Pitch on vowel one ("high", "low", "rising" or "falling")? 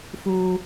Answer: low